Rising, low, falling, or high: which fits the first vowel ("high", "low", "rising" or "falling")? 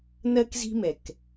high